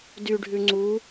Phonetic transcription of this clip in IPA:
d y ɖʱ ʉ ŋ͡ǀ u

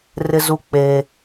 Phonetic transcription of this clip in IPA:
r ɪ˦ z u˦ k͡p eː˦

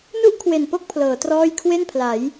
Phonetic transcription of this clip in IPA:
n u˥˩ ʔ kʰ w e˨˩ n p o˥˩ k̚ pʰ l ɤː˩˦ t r ɔː˥˩ j kʰ w e˥˩ n pʰ l a˩˦ j

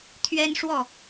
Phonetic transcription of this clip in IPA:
t̪ʰ ɥ ɛ˦ n ʂ w ɔ˥˨

